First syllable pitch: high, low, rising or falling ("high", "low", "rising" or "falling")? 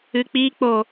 low